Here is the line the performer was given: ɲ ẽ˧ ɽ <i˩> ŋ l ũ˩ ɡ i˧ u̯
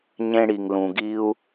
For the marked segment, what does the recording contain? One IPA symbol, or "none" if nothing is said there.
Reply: i˩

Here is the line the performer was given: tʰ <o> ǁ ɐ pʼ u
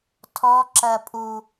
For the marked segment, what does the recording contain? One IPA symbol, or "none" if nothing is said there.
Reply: ɔ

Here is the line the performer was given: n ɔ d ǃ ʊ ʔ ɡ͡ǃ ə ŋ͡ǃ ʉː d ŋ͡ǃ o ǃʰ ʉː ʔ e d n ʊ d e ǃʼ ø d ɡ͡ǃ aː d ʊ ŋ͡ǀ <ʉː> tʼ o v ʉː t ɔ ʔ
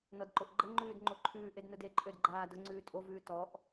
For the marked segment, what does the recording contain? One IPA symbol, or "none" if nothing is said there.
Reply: ʉː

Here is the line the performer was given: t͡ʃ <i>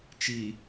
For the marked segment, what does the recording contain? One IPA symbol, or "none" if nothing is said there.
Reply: i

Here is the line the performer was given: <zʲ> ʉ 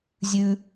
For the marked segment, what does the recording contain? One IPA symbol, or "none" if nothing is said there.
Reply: zʲ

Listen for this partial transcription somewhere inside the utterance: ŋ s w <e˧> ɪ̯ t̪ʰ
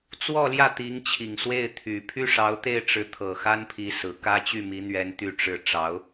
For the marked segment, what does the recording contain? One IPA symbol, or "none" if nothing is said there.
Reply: e˥˩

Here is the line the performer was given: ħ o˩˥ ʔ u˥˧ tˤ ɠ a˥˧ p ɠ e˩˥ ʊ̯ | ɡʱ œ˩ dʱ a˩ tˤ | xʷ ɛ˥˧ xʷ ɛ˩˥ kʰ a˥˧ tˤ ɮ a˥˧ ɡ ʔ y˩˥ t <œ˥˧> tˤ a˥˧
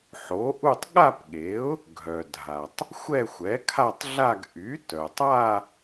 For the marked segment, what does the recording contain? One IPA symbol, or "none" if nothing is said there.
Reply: œ˩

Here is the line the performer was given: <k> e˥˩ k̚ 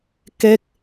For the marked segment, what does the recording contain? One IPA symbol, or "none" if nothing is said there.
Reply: k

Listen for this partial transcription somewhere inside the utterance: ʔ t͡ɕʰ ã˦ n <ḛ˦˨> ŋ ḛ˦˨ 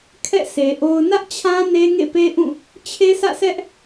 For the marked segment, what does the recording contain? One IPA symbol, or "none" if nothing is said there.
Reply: e˦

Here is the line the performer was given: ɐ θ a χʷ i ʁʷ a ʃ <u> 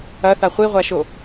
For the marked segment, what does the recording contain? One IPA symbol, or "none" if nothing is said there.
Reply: o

